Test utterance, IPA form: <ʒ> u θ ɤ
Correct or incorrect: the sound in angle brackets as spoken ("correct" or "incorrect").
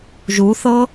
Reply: correct